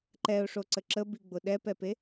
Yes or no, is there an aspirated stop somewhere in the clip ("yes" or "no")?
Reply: no